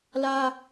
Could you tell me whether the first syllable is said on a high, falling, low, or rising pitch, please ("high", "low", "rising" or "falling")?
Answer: high